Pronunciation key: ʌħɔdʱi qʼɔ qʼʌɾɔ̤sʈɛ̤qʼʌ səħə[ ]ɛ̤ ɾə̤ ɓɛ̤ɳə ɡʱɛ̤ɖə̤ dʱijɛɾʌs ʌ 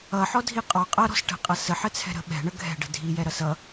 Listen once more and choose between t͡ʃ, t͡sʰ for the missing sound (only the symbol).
t͡sʰ